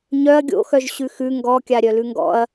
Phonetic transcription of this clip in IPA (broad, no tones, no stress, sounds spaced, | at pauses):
ɲ œ ɐ̯ ɡʲ o̰ x œ ʒ ɕ ʉ x ʉ ŋ ɡ ɔ kʲ a ɾʲ œ l ʉ ŋ ɡ ɔ̰ ɐ̯